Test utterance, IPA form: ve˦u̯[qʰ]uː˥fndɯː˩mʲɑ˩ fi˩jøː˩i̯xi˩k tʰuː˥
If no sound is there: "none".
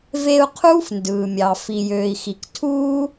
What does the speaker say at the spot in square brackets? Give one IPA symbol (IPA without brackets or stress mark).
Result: qʰ